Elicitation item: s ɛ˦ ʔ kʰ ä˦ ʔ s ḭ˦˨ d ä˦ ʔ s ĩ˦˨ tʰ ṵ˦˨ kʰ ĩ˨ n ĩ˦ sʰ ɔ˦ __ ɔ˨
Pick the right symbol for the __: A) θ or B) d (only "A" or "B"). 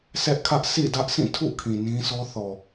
A